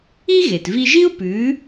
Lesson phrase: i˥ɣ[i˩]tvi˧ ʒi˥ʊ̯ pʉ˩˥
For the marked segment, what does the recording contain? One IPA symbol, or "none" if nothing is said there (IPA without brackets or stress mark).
e˩